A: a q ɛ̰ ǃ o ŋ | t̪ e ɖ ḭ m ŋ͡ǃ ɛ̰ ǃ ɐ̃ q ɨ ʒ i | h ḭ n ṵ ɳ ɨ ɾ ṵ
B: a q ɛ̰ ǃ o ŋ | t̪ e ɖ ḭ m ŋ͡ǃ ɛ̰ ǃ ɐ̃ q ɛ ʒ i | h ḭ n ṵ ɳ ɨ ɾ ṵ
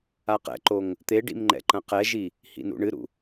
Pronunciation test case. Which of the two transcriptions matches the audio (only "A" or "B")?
B